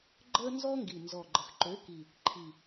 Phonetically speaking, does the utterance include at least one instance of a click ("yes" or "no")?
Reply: yes